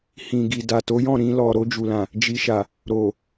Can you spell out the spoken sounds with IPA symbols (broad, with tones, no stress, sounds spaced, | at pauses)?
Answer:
h ĩ˨ ɡ i˨ d a˨ t o˨˦ j ɔ̃˦˨ ɾ ĩ˧ l ɔ˨ ɾ o˧ d͡ʒ u˨ l ã˨ | d͡ʒ i˨ ʃ a˨ | ɾ o˨